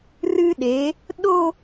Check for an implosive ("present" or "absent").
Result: present